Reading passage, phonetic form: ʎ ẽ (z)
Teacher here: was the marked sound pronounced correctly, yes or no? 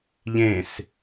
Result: no